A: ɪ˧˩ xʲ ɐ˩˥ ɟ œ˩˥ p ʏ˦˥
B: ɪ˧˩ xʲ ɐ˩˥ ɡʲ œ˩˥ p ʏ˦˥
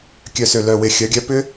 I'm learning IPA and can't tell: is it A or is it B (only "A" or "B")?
B